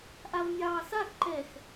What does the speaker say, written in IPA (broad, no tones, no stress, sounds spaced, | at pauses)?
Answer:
ʔ a v mʲ ɑː s a x ǃ ɛ x